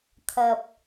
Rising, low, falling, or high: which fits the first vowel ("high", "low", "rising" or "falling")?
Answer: low